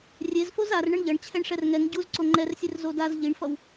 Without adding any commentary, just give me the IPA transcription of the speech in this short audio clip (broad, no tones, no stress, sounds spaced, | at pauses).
rʲ e z f o z a r ɳ ʌ ɳ ʎ ʌ ɳ t͡ɕʰ ɛ ɳ ʂ ɛ r ŋ ɛ ŋ ɟ u z ǀ o ŋ͡ǃ ɛ r sʲ e r z o d a z ʎ i ɳ f ʌ w